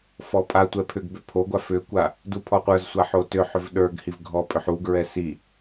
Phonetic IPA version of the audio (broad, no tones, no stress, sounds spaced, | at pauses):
f ɔ pʼ a tʷ ɛ pʰ ʏ ɡ b ʏ pʰ o ɡʷ a f ʏ kʷ a | d u pʰ ɔ qʷ ə˞ z sʷ a ħ o t ʏ ħ ʏ v ɗ ə˞ ɡ h i v ɡʱ ɔ pʼ ʏ ħ u ɡ ɹ ɛ s i